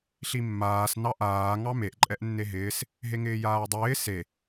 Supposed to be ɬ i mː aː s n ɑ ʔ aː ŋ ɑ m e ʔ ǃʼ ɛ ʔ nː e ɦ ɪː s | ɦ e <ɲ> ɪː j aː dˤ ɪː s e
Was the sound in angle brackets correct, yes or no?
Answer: no